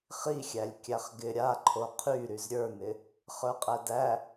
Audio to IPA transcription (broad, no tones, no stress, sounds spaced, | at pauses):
χ i xʲ æ lʲ kʲ æ χ ɡ ɪ ɾʲ a ǃʰ o qʰ y ɾ y z ɾʲ ə˞ n ɪ | χ ə˞ qʼ æ d æ